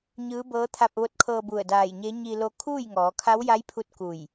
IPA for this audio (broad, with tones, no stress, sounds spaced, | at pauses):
ɲ ɯː˧˥ b ɤː˧˥ t̪ʰ a˧ p̚ ʋ o˧ t̚ kʰ ɤː˧ b u˧˩ ə̯ d aː˧˩ j ɲ e˧˥ ɲ i˧ l o˧ kʰ uː˥˨ j ŋ ɔː˩˧ kʰ a˧˥ w j a˧˥ j pʰ u˧ t̚ k u˧˩ j